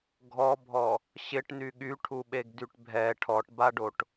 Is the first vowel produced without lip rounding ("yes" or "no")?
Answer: no